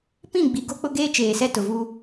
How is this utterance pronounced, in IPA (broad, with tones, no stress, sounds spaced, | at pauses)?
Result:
p ĩ˦˨ ɡ͡b i˨ ɡ o˦ k͡p ʊ˦ ɡ eː˦ t͡ʃ eː˨ s ɛ˦ t ʊ˨ v u˦